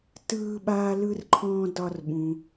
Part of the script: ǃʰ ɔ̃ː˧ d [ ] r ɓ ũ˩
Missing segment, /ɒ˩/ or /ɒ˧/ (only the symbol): ɒ˧